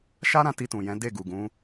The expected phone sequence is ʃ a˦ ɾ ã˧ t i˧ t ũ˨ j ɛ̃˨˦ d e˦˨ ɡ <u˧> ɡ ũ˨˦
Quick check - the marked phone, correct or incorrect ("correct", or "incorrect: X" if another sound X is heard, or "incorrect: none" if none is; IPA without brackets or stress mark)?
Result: incorrect: u˨